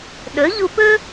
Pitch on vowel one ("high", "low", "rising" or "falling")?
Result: rising